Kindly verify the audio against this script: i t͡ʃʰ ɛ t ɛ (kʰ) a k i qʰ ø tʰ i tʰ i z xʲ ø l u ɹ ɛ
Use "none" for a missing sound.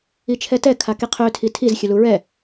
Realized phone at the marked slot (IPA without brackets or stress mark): kʰ